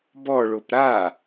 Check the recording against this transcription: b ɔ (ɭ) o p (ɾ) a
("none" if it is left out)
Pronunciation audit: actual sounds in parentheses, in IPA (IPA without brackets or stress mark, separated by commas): ɭ, ɾ